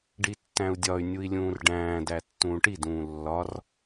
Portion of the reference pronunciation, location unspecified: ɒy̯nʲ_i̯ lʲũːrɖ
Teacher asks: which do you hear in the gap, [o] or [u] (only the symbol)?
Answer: u